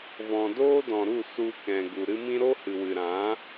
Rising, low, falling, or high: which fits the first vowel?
low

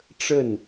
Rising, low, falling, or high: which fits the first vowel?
falling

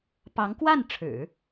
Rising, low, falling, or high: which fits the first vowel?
rising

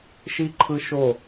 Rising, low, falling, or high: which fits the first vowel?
high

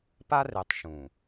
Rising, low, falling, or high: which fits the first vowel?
high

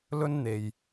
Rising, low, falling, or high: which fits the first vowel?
high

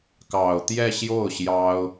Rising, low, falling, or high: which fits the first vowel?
low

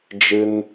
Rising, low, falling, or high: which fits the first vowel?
high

